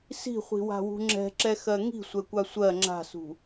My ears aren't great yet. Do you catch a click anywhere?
yes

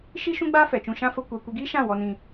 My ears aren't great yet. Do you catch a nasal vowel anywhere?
yes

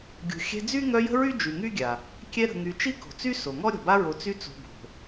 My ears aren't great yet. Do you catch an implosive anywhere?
no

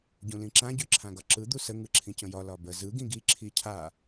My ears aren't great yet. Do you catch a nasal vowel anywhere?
yes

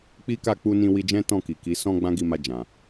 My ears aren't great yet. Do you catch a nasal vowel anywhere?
yes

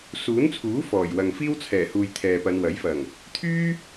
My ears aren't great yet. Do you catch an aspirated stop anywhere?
yes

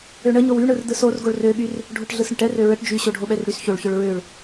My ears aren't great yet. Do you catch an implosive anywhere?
yes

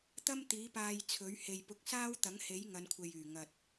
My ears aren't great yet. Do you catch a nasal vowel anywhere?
no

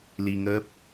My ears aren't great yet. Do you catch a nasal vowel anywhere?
no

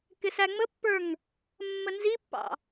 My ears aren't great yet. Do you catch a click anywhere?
no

